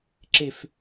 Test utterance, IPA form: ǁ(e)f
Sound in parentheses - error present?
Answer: no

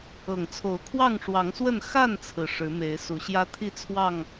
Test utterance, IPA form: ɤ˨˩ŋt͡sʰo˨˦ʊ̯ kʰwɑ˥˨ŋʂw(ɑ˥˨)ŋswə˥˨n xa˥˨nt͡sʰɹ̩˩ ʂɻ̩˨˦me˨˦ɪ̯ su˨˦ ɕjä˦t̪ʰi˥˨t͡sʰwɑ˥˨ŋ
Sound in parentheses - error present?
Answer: yes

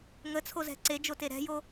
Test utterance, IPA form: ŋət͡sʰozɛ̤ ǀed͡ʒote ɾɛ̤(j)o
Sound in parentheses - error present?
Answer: no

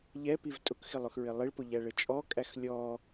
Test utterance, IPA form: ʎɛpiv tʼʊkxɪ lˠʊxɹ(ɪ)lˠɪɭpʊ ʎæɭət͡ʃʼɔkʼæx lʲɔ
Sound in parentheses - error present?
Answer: no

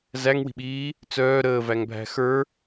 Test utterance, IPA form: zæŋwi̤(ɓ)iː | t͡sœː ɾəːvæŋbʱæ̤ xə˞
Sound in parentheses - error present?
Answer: no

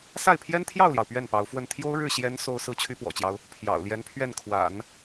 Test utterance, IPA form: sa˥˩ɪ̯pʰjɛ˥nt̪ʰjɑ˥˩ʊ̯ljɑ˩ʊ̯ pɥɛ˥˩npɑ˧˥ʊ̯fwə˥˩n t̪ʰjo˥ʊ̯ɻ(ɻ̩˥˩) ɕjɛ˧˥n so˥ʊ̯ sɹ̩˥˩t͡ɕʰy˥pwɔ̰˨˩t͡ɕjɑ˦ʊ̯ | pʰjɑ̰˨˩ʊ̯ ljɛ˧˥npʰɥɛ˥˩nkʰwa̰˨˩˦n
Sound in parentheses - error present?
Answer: no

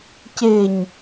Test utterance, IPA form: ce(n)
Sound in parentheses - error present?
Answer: yes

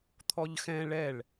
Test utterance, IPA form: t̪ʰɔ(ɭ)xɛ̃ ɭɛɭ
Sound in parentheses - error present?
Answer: yes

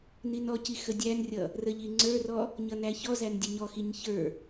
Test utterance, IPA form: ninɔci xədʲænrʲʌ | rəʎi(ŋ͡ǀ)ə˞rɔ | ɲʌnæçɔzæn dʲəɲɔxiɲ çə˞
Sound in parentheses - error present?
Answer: no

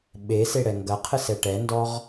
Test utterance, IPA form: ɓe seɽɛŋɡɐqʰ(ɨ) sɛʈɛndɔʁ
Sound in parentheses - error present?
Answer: no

